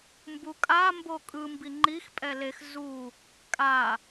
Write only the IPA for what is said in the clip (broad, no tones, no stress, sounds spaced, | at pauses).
m b u kʼ a m b o kʼ ɯ m b i ŋ͡ǃ i x pʼ ɛ l e x z u | kʼ a